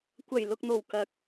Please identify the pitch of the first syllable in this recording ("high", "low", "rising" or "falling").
low